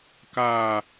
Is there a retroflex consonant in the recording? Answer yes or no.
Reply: no